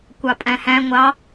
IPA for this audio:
kʷɑpʼæ̃hæ̃ ŋʷɑ

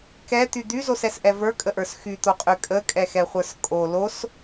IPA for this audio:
kɛt̪y d̪yzosɛsʔɛ və˞kʼəʔə˞s xyt̪oqʼy kʼəkʼɛxɛχʷə˞s kʼo los

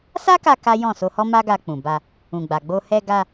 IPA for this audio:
sa˦ka˧ ka˦ jɔ̃˦˨ so˧hɔ˦ ma˦ɡa˧k͡pũ˨ ba˧ | ũ˨ɡ͡ba˨ɡ͡bo˧ hɛ˧ɡa˧

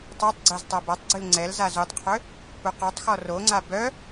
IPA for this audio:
tˤœtˤɡ͡ǀɛz tˤabatˤɡ͡ǀyl ŋ͡ǀɛlzaz utˤqʰø | puqɔtˤxɔ roŋ͡ǀa bœ

